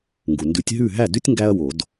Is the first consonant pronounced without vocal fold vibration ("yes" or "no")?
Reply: no